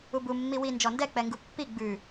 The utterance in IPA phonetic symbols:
u b u mː i w i n d͡ʒ ɔ n d ɛ k͡p ɛ ŋ ɡ u pː i ɡ͡b ʉ

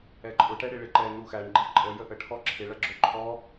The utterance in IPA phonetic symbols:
ɛ ǃʼ ʊ ʈ ɛ ɽ ɪ ɭ ɪ ǃ ɛ n u x æ ɳ ɡ͡ǃ i ǃʼ ə j ə ʔ ə ʈʰ ɔ ǁʰ ɪ ɭ ʌ ɡ͡ǁ ʊ ǃʰ ɔ

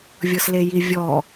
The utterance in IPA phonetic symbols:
vʲ ɤ s l e j i vʲ ɔ

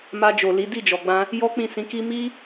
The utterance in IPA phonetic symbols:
m a˧ d͡ʒ o˨ l i˨˦ d i˦˨ d͡ʒ ɔ˨ ɡ͡b ã˧ | j ɔ˦ k͡p ĩ˦˨ s ĩ˨˦ k i˦ m i˦

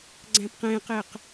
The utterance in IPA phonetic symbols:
ɡ͡ǀ æ̃ p q ẽ q e q

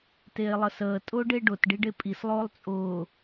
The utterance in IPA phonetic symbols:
t eː lˠ ə s əː tʼ ʊː ɖ e ɖ ʊ t ɖ i ɖ e pʼ i s lˠ ʊː lˠ t͡sʼ ʊː

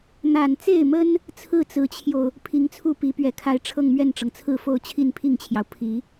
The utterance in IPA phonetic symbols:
n̪ a˨˩ n t͡s e˥˩ ɪ̯ m ə˥ n | t͡sʰ ɹ̩˥˩ t͡s ɹ̩˧˥ t͡ɕʰ j o˧ ʊ̯ | pʰ i˧˥ ŋ t͡sʰ u˥˩ p i˧˥ p ɥ ɛ˨˩ kʰ a˧˥ ɪ̯ ʈ͡ʂʰ ɤ˥˧ ŋ m ɥ ɛ˥˩ n ʈ͡ʂ ɤ˩ ŋ t͡sʰ ɹ̩˥˧ f o˥˧ ʊ̯ t͡ɕʰ i˥˧ n pʰ i˥˩ ŋ t͡ɕʰ j ɑ˩ ʊ̯ pʰ i˨˩˦

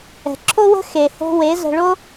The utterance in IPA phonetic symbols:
ɛ̤˩ ǁʰ o˥ w ə̤˥ x e˩ h o̤˧ w e˩˥ z ə̤˧ ɭ o˥

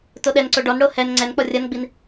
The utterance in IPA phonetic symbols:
t o ɗ ɛ n ǀ o ɖ ɔ n ɽ o h ɛ n ŋ͡ǀ ɛ n k͡p ɔ rʲ ɐ n ɡ͡b i n

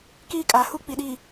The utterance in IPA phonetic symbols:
k iː˦ kʼ a˨ h u˦ k͡p i˨ ɗ i˨

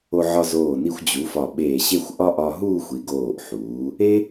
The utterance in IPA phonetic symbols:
o˧ ʕ ɒ˧ z oː˧˩ n i˧ xʷ d͡ʑ u˩˧ f ɒ˧˩ ɓ eː˧˩ ɕ e˥˧ xʷ ʔ ɒ˥ ʔ ɒ˧ ɦ uː˥˧ xʷ i˩˧ ɡ oː˧˩ ʔ ħ uː˩˧ | e˥

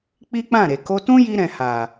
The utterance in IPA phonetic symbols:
k͡p i˦ k͡p ã˦˨ ɾ e˨ k o˧ t ũ˦ j i˧ ɾ ɛ̃˨ h a˨

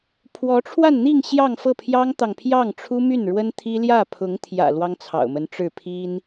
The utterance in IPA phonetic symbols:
pʰ w ɔ˧˥ ʈ͡ʂʰ w a˥˧ n n̪ i˥˧ ŋ ɕ j ɑ˥˧ ŋ f ɤ˥˩ pʰ j ɑ˥ ŋ t̪ ɑ˨ ŋ pʰ j ɑ˥˩ ŋ ʈ͡ʂʰ u˥ m y˥˩ n ɻ w ə˥ n t̪ʰ i˥ l j ä˥˩ pʰ ʊ˧˥ ŋ t̪ʰ j ä̰˨˩ l w ɑ˥ ŋ t͡sʰ ɑ̰˨˩ ʊ̯ m ə˧˥ n ʈ͡ʂ ɻ̩˥˩ pʰ i˥ n

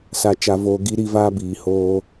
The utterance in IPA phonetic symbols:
s a˨ t͡ʃ a˨ v oː˨ ɡ i˦ ɾ i˦ v aː˦ b iː˨ h oː˦

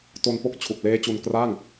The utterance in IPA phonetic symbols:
t o˧ n p o˦˥ k̚ t͡ɕʰ u˨˩ k̚ l eː˦˥ t͡ɕ u˧ n k r a˥˩ ŋ

